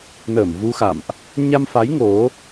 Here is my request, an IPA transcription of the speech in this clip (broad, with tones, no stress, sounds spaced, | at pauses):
n əː˧˩ m v u˧ x a̰˧˨ m ʔ | ɲ a˧ m f a˨˦ j ŋ o˨˦